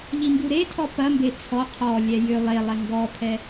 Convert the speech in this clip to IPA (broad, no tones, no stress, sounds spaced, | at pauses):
ʎ i m b u ɾ e tʰ ɔ p ɐ m b e t͡sʰ ɔ qʰ ɔ lʲ ɛ j ʏ lˠ e lˠ ɛ ŋ ɡ ɔ pʰ ɛ